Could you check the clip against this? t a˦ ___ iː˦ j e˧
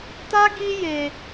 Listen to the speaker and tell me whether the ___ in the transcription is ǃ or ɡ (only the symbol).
ɡ